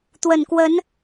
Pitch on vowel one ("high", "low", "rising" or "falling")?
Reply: low